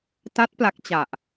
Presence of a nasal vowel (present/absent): absent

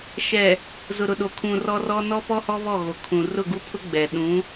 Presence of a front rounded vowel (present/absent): absent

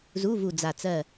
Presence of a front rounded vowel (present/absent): absent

